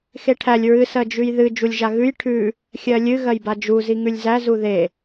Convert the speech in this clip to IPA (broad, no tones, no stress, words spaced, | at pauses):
xeʈʰælʲ ɹɨ sɜd͡ʒʉjðɨ d͡ʒulʲʒaɣʉj ʈʰʉ | xʲɜlʲɨ ɣɜjbad͡ʒu ziŋʉlʲzæ zuðe